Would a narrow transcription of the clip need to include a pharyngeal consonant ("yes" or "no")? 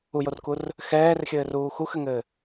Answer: no